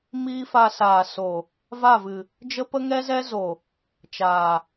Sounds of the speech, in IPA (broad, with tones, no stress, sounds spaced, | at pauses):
m iː˦ f a˧ s aː˨ s o˨ | v a˦˨ v ɨ˨ | d͡ʒ ə˦ p ə˦ ŋ ɛ˦ z ɛ˦ z o˨ | t͡ʃ aː˨